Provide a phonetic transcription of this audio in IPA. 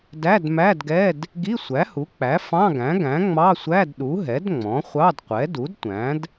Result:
d æ˧˥˧ d m æ˧˥˧ d ɡ ɛ˧˥˧ d | ɡ i˧˥˧ sʷ æ˩˥ h u˩˥ k͡p æ˩˥ f ɑ̃˧˥˧ ɡ æ̃˩˥ ɡ æ̃˩˥ ŋ͡m ɑ˧˥˧ sʷ æ˧˥˧ d ɗ u˩˥ ɦ ɛ˩˥ d ŋ͡m ɔ̃˩˥ χʷ ɑ˧˥˧ d qʷ ɛ˩˥ d u˩˥ d tʷ æ̃˩˥ d

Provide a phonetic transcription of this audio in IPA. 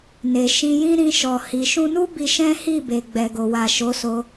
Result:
n e˨ ʃ ĩ˧ j ĩ˦ ɾ ĩ˧ ʃ ɔ˨ h i˨ ʃ ũ˧ n u˦ b i˧ ʃ ɛ̃˦ h i˦˨ b e˨ ɡ͡b ɛ˨ ɡ o˨ w a˨ ʃ o˨˦ s o˧

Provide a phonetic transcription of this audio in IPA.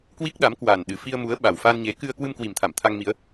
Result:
k w i˦˥ k̚ ɗ a˨˦ m k w a˨˩ n ɗ ɨ˨˩ f i˧ ə̯ m u˨˦ ə̯ ɓ a˨˩ w f a˧ n ɲ e˨˦ k ɨ˧ ə̯ k w ɨ˧ m k w i˨˩ m t̪ʰ a˧˩ m t̪ʰ a˧ ŋ m i˨˦ ə̯

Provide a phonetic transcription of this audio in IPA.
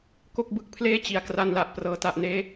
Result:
k o˥˩ k̚ b ɯ˥˩ k̚ pʰ l eː˥˩ t͡ɕ i˨˩ a̯ k r a˧ n l a˨˩ ʔ p r ɤː˩˦ t a˨˩ ʔ n eː˦˥

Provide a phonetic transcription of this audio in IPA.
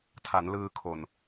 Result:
tʰ a˩˦ n l ɯː˧ kʰ o˨˩ n

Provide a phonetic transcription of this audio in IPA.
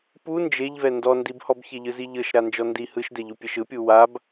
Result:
p u n d͡ʒ e ʎ v ɛ n d ɔ n d i b h ɔ b ç e ʎ ɯ z i ʎ ɤ ʃ ɾ a n d͡ʒ ɔ n d i h ɯ ʃ d ɛ ʎ u pʲ ɛ ʃ ɯ pʲ u w a b

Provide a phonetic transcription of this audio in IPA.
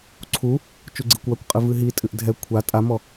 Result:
ǀʰ u | t͡ʃ u ɡ͡ǀ i kʷ w a kʷ qʼ ɨ v ɨ ɦ i tʼ ɨ ʔ dʱ ɛ kʷʰ a tʼ a m ɔ

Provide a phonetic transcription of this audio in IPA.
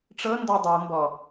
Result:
ʈ͡ʂ ɤ n d ɒ dˤ ɤ m b ɔ

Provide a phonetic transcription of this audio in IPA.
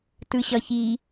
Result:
t ɯ ɕ ʌ ç i

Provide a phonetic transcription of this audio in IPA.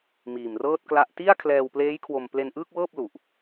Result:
m iː˨˩ m r ɤː˥˩ t̚ k l a˥˩ ʔ t i˥˩ a̯ kʰ l ɛː˧ w p l eː˦˥ j kʰ w o˧ m p l e˧ n ʔ ɯː˥˩ k̚ w ɤː˥˩ p̚ l u˨˩ ʔ

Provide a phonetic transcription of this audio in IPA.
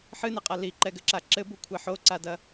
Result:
ħ ɨ n ɛ qʼ a l i ǃ ɛ ɡ ɘ ǁ a ǁ ɘ b u kʷʰ ɛ ħ o ǀ a d ɐ

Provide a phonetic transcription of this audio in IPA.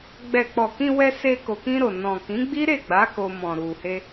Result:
ɡ͡b ɛ˨ k͡p ɔ˨ k ĩ˧ w ɛ˧ s e˧ k o˨ k ĩ˧ ɾ o˨ n ɔ̃˨ k ĩ˨˦ ɡ͡b i˦ ɾ e˦˨ ɡ͡b a˨˦ k o˧ m ɔ̃˨ ɾ u˨ h e˧

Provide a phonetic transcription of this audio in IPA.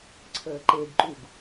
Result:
ǀʰ əː ǃ e ɡ ǃ u ɡ

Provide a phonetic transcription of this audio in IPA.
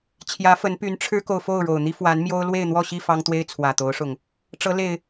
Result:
t͡ɕʰ j ä˨˦ f ə˨˦ n p y˨˦ n ʈ͡ʂʰ ɻ̩˦ k o˨ ʊ̯ f o˥˨ ʊ̯ ɻ o˨˩ ʊ̯ n̪ i˦ f w a˨˦ n m j o˦ ʊ̯ l w e˥˨ ɪ̯ n̪ w ɔ˥˨ ɕ i˥˨ f ɑ˦ ŋ t̪ w e˦ ɪ̯ t͡sʰ w ä˨˩ t̪ o˨˦ ʊ̯ ʂ ʊ˨˩ ŋ | ʈ͡ʂ ɤ˨˦ l e˨˩ ɪ̯

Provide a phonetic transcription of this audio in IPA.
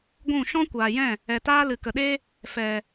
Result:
ɡʷ ũ˦˨ ʃ ɔ̃˦ kʷ aː˨ j ɛ̃˦˨ | ɛ˨ t aː˦ l ɨ˨ k ə˨ ɗ e˦ | f ɛ˨

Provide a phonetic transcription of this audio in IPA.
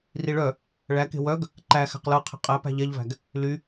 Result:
r i ɭ œ | ɭ æ k e̤ w œ ɡ | ǃ æ x æ̤ q l ɤ qʰ ɛ̤ qʼ æ p æ̤ ʎ ɛ ʎ v æ̤ ɡ | l y

